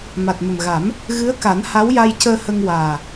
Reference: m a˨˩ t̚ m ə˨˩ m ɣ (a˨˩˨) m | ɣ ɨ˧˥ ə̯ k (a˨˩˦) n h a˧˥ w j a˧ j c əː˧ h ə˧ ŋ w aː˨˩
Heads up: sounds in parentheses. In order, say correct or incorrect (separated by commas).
incorrect, correct